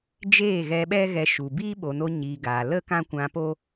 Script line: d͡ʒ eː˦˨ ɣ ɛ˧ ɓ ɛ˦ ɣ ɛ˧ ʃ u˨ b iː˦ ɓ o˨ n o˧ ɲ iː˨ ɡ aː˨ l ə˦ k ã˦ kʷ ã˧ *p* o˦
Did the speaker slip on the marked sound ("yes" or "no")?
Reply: no